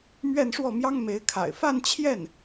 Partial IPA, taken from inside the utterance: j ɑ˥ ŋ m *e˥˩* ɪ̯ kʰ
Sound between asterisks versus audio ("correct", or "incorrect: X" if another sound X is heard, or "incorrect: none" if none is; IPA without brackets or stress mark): incorrect: e˧˥